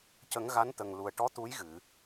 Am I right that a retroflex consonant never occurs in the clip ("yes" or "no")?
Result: no